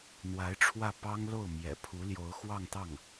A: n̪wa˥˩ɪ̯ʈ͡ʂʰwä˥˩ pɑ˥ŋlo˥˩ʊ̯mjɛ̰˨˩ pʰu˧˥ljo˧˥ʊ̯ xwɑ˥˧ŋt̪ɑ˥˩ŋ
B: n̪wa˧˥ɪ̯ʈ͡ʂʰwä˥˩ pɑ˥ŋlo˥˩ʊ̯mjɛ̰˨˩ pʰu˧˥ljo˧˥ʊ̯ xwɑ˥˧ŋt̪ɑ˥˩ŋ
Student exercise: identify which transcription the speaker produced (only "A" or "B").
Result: B